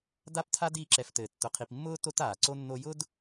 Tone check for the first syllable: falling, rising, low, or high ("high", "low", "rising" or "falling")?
high